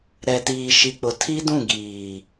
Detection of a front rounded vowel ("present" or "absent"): absent